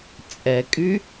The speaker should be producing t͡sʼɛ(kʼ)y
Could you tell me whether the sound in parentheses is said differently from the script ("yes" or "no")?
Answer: no